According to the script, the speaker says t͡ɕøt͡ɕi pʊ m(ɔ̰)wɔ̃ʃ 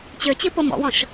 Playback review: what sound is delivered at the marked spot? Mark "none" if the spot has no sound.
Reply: ɔ̰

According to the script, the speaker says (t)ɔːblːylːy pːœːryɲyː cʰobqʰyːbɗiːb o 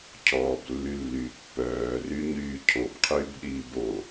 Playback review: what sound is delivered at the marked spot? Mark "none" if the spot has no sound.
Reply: cʰ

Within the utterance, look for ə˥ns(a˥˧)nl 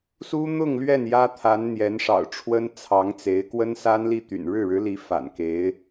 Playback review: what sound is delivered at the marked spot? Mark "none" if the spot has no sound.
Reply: a˥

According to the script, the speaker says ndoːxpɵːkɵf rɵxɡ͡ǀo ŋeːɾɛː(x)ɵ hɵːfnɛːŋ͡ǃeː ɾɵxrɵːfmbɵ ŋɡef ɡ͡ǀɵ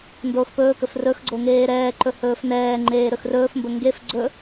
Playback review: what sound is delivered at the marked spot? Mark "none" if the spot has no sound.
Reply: ǃ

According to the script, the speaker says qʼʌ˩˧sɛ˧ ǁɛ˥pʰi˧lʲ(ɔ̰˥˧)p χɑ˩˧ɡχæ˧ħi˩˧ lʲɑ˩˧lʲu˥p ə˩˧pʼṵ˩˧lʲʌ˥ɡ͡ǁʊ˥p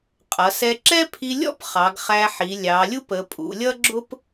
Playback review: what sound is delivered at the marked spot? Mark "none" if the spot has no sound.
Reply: ɔ̰˥˧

